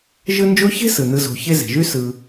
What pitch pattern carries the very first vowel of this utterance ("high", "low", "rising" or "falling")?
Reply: high